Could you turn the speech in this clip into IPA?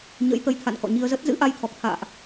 ɲə̰˧˥jt̪ə˨˦j t̪ʰa̰˧˨n kɔ̰˧˨ɲi˧ə̯zə˦˥t̚ zɨ̰˧˥ʔa˧jt̪ʰɔ˨˩k̚t̪ʰa̰ː˧˨ʔ

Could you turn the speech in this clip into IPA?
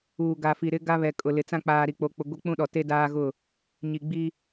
uː˨ɡa˨fi˨ ɾɪ˦ɡa˦βɛ˨ kʼʊ˨lɪ˨t͡sã˦ k͡paː˨ɾi˨k͡po˨k͡pʊ˨ ɡʷi˦k͡pũ˦ɗɔ˨ te˦daː˦ɣʊ˦˨ | ɲi˨ɡ͡bi˦

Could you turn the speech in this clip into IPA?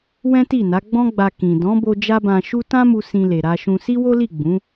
wɛ̃˦ti˦˨na˨˦ ɡ͡bɔ̃˦ɡ͡ba˧ kĩ˨ dɔ̃˨˦bo˧ d͡ʒa˦bã˧ʃu˦ tã˦mu˧ sĩ˧le˨ɾa˧ʃũ˧ si˦wo˦li˦˨ ɡ͡bũ˨˦

